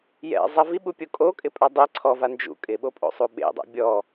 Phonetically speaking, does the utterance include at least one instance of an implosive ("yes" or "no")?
yes